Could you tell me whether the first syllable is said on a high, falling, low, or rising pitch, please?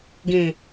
low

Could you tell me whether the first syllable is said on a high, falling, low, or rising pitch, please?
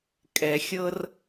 low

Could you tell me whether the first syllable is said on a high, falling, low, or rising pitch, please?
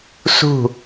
falling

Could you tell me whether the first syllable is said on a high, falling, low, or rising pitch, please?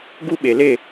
high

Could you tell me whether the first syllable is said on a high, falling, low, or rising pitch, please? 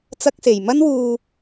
high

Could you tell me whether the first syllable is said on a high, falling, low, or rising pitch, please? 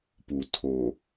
low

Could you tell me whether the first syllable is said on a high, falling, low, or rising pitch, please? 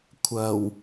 low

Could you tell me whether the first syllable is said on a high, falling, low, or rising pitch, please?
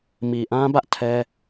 low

